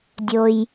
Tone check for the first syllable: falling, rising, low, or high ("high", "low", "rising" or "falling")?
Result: low